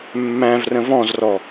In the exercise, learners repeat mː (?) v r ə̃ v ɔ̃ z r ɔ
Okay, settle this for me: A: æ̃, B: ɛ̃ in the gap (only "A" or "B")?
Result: A